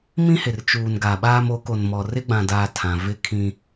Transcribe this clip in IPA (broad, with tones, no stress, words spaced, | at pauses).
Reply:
mĩ˦hɪ˨r t͡ʃuː˨nɡa˨ɓaː˦m o˨˦ko˨nmɔ˨ rɪ˦ɡ͡bã˨daː˨ tʰã˨vɪ˦kʰĩ˦